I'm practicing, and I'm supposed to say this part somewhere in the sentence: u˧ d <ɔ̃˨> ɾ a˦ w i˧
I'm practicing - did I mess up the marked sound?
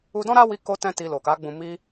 yes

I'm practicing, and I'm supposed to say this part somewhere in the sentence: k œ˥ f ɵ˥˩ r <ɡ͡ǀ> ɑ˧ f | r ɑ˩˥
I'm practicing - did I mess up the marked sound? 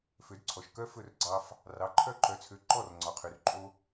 no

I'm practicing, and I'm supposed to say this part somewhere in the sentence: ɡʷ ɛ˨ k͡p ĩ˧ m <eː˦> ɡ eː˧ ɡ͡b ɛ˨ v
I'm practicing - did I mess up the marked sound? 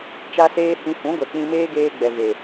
no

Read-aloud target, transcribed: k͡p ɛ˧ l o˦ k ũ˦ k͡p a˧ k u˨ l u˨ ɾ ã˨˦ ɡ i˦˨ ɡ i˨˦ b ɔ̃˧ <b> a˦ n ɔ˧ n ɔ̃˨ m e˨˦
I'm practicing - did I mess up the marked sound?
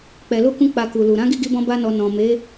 no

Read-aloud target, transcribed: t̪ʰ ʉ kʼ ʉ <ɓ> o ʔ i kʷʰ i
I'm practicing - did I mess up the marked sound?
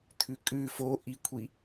yes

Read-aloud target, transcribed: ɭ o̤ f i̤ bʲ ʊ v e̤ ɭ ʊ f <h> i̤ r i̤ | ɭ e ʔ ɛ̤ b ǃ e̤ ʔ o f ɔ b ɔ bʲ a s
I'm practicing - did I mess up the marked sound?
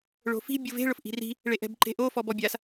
yes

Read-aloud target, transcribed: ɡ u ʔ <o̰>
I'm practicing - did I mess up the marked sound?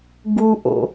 no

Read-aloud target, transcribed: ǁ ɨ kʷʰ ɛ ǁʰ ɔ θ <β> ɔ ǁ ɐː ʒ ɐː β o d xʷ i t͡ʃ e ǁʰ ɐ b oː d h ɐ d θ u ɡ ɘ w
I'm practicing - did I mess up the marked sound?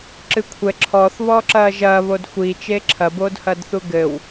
no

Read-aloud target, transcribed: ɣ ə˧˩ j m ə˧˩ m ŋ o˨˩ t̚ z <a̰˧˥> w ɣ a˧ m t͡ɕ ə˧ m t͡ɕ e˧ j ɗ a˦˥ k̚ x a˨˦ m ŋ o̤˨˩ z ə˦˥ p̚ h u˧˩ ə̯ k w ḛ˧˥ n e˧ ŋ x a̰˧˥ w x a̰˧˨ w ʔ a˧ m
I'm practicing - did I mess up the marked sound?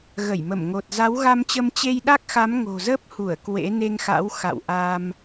yes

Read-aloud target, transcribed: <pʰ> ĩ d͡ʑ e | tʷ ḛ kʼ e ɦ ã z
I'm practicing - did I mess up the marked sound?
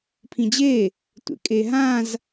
no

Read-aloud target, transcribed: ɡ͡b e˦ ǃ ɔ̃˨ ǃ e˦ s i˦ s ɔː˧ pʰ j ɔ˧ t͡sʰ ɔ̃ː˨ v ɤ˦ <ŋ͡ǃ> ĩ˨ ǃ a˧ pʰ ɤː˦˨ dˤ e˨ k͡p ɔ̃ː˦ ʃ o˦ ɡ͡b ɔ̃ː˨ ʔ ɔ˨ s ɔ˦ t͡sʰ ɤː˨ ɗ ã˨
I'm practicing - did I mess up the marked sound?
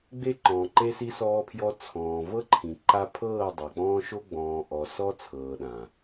yes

